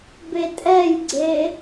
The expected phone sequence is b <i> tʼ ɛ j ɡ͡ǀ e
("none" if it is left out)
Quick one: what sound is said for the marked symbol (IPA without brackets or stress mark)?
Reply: e